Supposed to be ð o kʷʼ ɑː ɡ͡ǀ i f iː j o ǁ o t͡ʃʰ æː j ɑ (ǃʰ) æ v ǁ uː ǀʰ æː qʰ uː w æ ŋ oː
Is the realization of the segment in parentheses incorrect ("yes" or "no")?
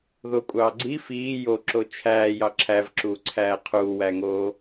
yes